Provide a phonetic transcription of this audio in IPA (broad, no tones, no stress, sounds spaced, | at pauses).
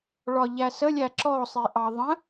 ɭ ɒ ʎ æ s ə lʲ æ ǁ ɔ sˤ i ʔ ɑ ðˤ ə̃